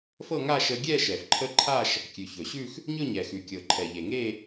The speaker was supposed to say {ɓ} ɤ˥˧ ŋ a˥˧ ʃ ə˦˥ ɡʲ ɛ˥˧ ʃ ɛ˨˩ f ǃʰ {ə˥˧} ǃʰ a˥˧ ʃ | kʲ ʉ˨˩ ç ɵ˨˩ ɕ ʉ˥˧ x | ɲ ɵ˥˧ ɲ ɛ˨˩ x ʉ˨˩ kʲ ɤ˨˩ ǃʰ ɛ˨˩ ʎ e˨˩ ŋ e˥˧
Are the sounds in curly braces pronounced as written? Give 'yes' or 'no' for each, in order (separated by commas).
no, no